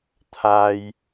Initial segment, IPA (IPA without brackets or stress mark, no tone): t̪ʰ